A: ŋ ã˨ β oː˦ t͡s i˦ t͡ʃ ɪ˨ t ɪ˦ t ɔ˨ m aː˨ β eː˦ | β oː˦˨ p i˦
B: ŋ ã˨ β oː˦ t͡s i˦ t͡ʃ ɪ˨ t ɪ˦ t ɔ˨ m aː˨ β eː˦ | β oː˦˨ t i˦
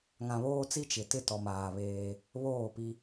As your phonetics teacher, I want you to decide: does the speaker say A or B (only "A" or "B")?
A